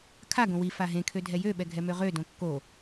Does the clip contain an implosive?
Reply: yes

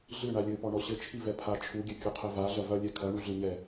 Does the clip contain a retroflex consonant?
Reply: yes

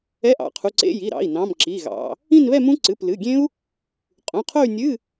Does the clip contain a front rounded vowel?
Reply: yes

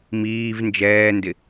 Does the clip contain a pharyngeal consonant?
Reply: no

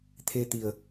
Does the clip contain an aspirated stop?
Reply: yes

